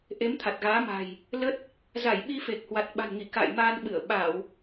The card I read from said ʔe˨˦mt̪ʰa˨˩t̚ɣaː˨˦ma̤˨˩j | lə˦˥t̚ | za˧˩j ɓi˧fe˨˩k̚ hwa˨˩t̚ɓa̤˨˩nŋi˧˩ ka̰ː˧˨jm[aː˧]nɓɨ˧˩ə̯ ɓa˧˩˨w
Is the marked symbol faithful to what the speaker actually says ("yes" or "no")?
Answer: yes